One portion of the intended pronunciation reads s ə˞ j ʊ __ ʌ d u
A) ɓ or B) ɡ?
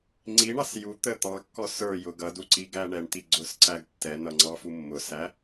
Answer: B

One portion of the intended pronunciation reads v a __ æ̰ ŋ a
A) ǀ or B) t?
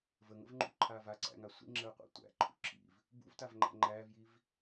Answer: A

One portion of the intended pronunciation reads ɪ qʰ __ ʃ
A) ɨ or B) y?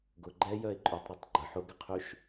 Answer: B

